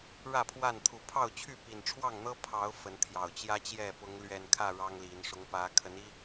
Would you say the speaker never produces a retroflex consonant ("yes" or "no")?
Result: no